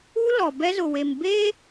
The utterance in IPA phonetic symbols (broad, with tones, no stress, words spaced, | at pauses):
u˦lɔ˨ bɛ˦zʊ˨we˨m beː˦